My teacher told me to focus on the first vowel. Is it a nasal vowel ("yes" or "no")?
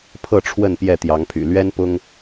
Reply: no